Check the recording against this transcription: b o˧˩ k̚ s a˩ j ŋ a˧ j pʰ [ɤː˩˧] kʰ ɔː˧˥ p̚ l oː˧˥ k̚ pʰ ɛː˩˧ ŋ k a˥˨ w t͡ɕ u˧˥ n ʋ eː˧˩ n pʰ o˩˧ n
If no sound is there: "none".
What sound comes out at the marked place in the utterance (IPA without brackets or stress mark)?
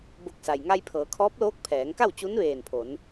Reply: ɤː˩˧